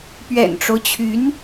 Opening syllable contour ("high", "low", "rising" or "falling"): low